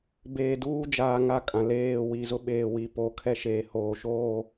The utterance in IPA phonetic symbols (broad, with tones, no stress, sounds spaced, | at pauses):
b eː˨ d uː˦ d͡ʒ aː˨ ŋ a˦˨ kʼ ã˨ l eː˦˨ w i˨ z ʊ˦ ɓ eː˨ w i˨ p o˨˦ kʰ ɛ˦ ʃ eː˨ h oː˨ ʃ oː˦˨